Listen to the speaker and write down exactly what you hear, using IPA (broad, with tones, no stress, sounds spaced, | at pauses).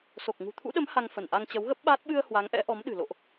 s o˨˩ k̚ ŋ ṳ˨˩ t̪ʰ ṵ˧˥ ɗ ə˨˦ m h a˧ ŋ f ə˧˩ n ʔ a˧ ŋ t͡ɕ ə˨˦ w ɣ ə˦˥ p̚ ɓ aː˦˥ t̚ ɓ ɨ˧ ə̯ h w a˨˦ ŋ ʔ ɛ̰˧˥ ʔ ɔ˨˦ m ɗ ɨ̤˨˩ l o̰˧˨ ʔ